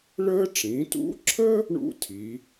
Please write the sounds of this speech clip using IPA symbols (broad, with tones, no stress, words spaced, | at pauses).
ɭəː˥ ʈ͡ʂĩ˩˧tṵ˧˥ǁʰə˥ | ɳṵ˥tʰi˩˧